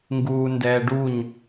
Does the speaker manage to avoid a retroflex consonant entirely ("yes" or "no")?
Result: no